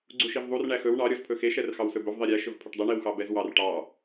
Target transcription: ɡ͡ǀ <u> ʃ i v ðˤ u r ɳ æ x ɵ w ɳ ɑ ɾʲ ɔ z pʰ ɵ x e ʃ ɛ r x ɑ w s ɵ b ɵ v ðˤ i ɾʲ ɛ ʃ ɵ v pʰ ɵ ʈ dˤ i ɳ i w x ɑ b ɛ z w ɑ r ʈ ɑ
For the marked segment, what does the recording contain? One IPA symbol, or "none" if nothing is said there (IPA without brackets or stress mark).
u